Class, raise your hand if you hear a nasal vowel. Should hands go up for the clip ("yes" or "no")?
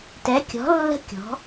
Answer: no